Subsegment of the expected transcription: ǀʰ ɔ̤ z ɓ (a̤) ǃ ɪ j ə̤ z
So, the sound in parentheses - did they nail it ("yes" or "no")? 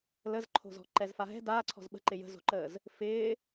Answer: no